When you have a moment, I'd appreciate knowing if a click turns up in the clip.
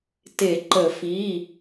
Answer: yes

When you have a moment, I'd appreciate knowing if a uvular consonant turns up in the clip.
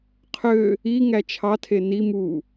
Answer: yes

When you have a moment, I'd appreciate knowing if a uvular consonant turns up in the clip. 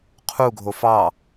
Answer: yes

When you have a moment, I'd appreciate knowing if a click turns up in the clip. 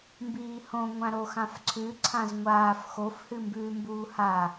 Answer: yes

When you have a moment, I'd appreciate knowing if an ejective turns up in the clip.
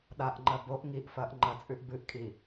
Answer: yes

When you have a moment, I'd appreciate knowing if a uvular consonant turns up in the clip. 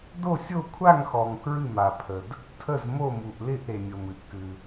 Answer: no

